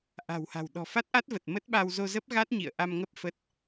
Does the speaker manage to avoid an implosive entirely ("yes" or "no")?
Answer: no